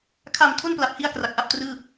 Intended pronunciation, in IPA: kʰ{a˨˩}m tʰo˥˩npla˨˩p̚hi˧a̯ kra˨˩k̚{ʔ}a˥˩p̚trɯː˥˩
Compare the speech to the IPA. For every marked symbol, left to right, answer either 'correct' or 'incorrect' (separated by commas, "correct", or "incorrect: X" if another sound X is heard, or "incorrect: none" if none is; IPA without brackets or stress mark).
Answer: correct, correct